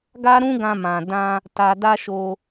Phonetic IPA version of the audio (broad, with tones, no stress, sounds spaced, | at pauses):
ɡ a˦ ɾ ũ˦ ɡ ã˧ m ã˨ d ã˧ | t a˧ d a˦ ʃ o˧